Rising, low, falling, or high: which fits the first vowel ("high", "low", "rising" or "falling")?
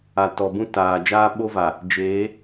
low